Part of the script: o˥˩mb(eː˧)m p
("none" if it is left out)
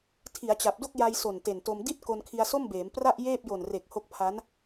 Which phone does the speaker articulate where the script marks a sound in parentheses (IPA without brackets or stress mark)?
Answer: eː˩˦